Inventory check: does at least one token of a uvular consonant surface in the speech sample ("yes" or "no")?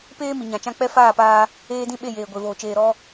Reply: no